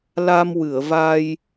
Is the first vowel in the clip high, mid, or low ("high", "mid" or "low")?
low